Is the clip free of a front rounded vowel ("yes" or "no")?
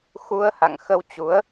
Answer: yes